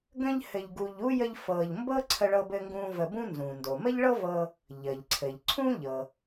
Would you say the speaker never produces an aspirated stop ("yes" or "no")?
no